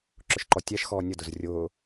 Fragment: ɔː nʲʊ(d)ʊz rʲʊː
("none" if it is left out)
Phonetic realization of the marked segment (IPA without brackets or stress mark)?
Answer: d